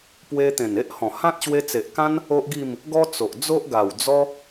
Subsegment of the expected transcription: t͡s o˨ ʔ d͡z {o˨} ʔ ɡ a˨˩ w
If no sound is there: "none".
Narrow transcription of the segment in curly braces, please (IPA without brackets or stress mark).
o˦